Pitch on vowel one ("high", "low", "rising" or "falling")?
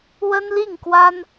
high